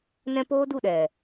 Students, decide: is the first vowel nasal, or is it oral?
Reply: nasal